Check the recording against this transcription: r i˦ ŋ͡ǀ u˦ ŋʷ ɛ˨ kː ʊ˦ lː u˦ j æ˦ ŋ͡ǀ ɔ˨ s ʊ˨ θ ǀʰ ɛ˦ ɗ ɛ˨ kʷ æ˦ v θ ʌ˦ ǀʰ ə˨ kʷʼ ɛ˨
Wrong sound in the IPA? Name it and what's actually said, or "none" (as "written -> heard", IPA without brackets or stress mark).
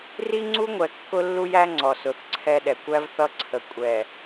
none